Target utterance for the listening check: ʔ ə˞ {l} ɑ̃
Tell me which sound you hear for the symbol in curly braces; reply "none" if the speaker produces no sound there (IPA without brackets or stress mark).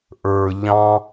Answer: ʎ